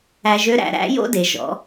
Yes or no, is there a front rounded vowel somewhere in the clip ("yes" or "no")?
yes